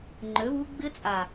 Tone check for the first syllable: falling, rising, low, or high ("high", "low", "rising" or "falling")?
rising